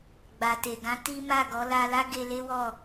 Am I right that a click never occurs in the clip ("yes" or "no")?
yes